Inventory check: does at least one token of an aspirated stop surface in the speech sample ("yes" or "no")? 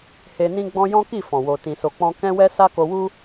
no